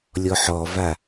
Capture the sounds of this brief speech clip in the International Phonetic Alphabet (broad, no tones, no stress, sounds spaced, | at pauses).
lʲ ɔ ħ ɔ v a